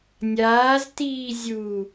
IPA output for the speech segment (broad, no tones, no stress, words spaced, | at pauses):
nʲaːztiː zʲu